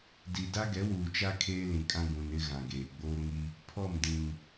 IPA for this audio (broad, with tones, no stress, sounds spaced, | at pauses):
d i˨ d a˦ ɡ ɛ˨˦ w uː˨ t͡ʃ a˦ kʰ eː˦ l ĩ˨ kʼ ã˦ ɡ ũ˨ n ɪ˦ ɣ ã˨ ɡ eː˨ ɡ͡b oː˦ ŋ i˦ | pʰ ɔ˦˨ m d ĩ˨ ŋ